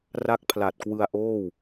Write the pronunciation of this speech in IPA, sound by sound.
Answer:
r a˦˥ k̚ pʰ l a˨˩ t̚ k w ɯ˧ a̯ ʔ oː˥˩ w

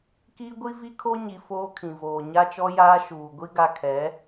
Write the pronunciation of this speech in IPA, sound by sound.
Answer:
k iː˦ ɡʷ i˦ v i˦ kʰ o˦ ɲ i˨ f oː˦ kʰ ĩ˨ v oː˨ ɲ a˦ t͡ʃ ɔ˦ j aː˦ ʃ uː˨ ɡʷ i˦ ɡ a˦ kʰ ɛ˨˦

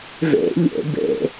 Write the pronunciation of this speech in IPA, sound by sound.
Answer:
v ḛ ʎ ḛ b ḛ

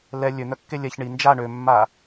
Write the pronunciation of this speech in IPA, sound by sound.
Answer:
l ɛ lʲ ø n̪ œ kː e lʲ ɛ ç ɳ i n d͡ʒ a ɳ ø mː a

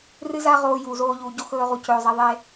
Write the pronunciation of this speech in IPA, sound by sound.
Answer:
r ɨ˦ z a˦ ʁ oː˧ j u˨ z oː˧ ʎ uː˨ ɟ o˦ x ɵː˦ ʁ u˧ c ɵː˨ zˤ ɛ˧ ðˤ e˦

